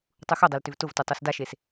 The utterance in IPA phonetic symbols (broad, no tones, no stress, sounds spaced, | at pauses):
tˤ u x o dˤ e l t ʏ v t ʊ v t u tˤ u s d a ʃ e s